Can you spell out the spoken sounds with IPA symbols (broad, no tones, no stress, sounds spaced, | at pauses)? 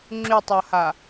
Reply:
ŋ͡ǁ y tˤ ɔ h a